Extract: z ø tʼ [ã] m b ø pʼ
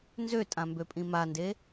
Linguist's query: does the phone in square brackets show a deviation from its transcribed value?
no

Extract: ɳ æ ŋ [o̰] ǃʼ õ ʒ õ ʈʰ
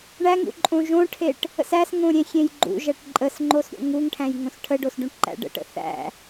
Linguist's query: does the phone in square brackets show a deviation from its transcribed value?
yes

